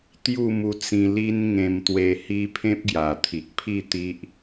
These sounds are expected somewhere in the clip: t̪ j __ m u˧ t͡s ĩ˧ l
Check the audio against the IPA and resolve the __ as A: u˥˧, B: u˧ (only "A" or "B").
A